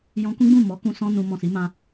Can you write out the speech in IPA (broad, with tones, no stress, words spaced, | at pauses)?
jɔ̃˧kũ˦ɡ͡bũ˦˨ mɔ˨˦kũ˧ sɔ̃˦nũ˧ mɔ̃˨si˨˦mã˧